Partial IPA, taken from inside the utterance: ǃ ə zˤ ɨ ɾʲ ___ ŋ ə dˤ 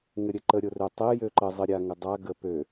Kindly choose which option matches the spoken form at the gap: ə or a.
a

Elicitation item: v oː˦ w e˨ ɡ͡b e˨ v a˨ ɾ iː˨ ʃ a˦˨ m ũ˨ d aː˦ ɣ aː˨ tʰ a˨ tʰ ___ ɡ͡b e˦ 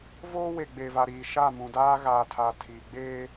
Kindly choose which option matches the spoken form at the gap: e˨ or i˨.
i˨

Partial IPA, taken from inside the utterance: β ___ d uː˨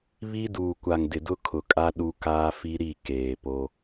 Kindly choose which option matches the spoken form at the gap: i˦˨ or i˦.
i˦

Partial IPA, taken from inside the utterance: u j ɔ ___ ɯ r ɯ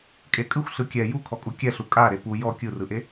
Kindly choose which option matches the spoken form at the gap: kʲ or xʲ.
kʲ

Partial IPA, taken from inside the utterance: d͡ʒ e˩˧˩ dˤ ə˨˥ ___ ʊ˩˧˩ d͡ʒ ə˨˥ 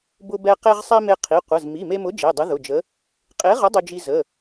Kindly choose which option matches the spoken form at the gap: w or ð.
ð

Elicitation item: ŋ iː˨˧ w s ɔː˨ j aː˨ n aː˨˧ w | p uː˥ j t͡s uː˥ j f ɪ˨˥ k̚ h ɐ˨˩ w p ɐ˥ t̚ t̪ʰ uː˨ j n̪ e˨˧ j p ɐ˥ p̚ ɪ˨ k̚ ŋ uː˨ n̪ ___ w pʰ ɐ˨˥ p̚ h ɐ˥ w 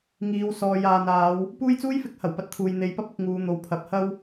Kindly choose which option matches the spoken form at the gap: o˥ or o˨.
o˨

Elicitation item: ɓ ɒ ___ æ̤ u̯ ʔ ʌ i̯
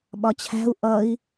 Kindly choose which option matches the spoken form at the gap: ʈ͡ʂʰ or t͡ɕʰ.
t͡ɕʰ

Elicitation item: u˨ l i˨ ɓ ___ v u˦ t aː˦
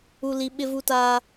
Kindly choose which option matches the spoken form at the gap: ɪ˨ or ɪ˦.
ɪ˦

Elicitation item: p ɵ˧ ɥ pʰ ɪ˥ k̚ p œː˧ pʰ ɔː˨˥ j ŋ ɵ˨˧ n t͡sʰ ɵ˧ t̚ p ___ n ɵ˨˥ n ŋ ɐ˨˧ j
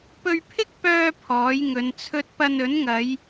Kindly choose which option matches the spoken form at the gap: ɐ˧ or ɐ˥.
ɐ˧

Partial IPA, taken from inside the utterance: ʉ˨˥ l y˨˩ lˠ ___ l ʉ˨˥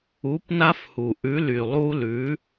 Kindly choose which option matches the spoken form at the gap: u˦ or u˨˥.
u˦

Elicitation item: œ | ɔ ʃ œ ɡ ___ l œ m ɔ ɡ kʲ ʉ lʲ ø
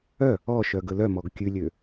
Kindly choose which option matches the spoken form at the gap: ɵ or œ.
ɵ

